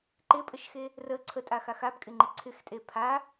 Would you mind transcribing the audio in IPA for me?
ǃ ɪ pʼ ə ʃ x e | r ə ǀʰ ə tʼ a x a x a b kʼ ɪ ŋ͡ǃ ɪ ǀʰ ɪ x tʼ e pʰ a

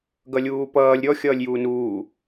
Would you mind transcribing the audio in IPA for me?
ɡ ʌ lʲ uː p ʌː lʲ ɾʲ ɔ xʲ ʌː lʲ j uː n uː

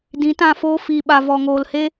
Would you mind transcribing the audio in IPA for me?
d ĩ˨˦ t ã˦˨ f oː˦ f iː˨ ɓ a˨ v ɔ˨ ŋ oː˨ l h e˦

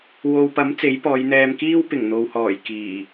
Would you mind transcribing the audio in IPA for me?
w o˨ w p ɐ˨˥ m t͡s e˨˥ j p ɔː˨˧ j n̪ ɛː˧ m k iː˥ w p ɪ˨˩ ŋ n̪ o˨ w h ɔː˨˩ j k iː˨˩

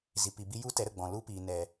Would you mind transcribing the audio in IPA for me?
z i˨ p i˨ b i˧ j u˦ t ɛ˨˦ ɾ ə˨ ɡ͡b ɔ̃˨ l u˦ p iː˨ n ɛ˨

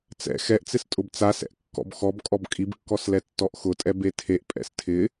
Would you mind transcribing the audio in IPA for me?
t͡s ɛ̰ x ɛ ʔ t͡s ɪ s tʼ ʊ b t͡s a s ɛ̰ ʔ kː ɔ̰ b x ɔ b kʼ ɔ b kʼ i b kː ɔ s l ɛ tː ɔ ʔ x ʊ tʼ ɛ b e tʰ e ʔ pʼ ɛ̰ s tʰ ɪ

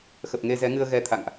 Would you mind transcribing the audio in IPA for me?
x ə˨˩ p̚ ŋ e˧ z ɛ˨˦ ŋ ɨ˧ ə̯ ɣ ɛ˧ t̪ʰ a̰˧˨ ŋ ʔ

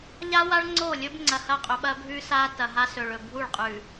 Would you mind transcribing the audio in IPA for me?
ʎ a˦ w a˦ ɭ ŋ͡ǀ o˦˨ lʲ ɵ˦ b ŋ͡ǀ ɐ˨ h ɐ˦˨ qʼ ɵ˨ ɓ ɐ˦ bʱ ʉ˦ s a˦ t ɐ˨ ɦ a˦ s ɵ˨ ɭ ɵ˨ bʱ u˦˨ ɭ qʼ ʉ˨

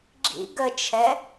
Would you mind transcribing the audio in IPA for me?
ɡ͡ǁ ḭ ɡ ə t͡ʃʰ ɛ

